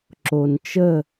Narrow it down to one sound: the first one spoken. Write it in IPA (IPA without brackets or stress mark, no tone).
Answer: ǁ